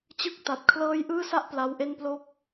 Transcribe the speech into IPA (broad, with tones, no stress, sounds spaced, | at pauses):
t͡ɕ ɯ˥˩ k̚ t a˨˩ t̚ kʰ l ɤː˥˩ j ʔ ɯː˥˩ s a˥˩ ʔ p l a˦˥ w ʔ e˥˩ n p l o˥˩ k̚